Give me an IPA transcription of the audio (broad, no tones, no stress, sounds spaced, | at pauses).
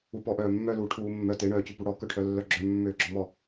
u p ɔ ʔ œː mː œ l uː ʈʰ uː mː œ t e ɳ œː c ʉ p u ɽ ɔ k œ ʈʰ œ lː œ ɡ͡ǁ œ mː øː ɡ͡ǁ ɔ m ɔ